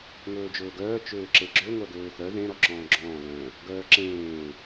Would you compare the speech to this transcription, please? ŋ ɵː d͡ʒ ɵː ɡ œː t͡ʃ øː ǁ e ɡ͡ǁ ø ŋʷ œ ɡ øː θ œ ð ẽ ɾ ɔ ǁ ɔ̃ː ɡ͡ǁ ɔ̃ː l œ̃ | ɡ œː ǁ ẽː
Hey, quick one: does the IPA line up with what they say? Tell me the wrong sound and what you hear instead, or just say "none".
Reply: none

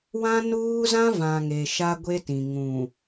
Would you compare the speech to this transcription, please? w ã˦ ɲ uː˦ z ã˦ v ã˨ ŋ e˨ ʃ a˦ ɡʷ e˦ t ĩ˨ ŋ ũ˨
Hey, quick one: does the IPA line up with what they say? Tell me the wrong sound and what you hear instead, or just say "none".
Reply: ɲ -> n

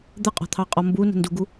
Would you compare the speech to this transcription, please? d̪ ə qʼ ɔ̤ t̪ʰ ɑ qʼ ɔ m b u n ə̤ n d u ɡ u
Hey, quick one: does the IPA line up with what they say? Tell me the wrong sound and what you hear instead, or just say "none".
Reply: none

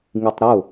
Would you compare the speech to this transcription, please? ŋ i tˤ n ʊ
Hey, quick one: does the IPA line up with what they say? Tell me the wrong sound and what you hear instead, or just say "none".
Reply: n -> ɾ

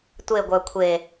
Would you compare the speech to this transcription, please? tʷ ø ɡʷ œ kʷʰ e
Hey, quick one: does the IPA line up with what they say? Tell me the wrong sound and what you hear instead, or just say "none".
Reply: ø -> e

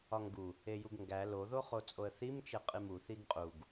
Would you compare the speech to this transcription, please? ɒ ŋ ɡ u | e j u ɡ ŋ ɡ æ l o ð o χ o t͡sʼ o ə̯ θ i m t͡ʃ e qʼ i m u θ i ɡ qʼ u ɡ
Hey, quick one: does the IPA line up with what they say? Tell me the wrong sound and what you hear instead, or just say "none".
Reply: none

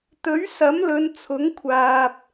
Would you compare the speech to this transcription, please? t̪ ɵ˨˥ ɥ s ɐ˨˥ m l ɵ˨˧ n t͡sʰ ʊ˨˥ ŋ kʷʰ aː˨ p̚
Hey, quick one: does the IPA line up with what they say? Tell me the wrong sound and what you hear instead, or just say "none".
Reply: none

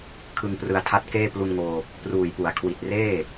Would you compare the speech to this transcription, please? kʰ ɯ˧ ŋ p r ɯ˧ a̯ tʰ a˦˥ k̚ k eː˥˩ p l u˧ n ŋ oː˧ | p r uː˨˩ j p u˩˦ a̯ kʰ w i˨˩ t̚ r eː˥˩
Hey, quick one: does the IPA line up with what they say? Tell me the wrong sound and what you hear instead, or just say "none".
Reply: k̚ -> t̚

